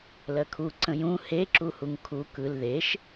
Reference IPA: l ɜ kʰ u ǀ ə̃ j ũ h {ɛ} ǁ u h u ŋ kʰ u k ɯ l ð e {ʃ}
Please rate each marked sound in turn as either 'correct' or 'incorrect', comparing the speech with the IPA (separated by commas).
incorrect, correct